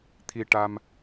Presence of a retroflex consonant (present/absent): present